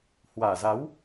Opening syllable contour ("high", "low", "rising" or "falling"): low